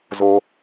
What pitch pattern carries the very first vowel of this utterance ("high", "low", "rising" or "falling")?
high